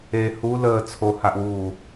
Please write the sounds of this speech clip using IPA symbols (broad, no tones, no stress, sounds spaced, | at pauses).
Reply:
e h u l əː t͡sʰ o h a ʔ w uː